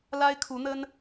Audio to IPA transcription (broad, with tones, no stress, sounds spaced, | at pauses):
l a˥ ɪ̯ kʰ u˧˥ n̪ ə˥ n